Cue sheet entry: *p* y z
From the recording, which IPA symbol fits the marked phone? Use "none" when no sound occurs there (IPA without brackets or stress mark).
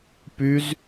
p